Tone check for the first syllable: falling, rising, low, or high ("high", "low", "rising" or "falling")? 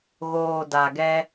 low